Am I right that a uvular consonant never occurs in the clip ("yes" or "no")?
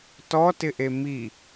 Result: yes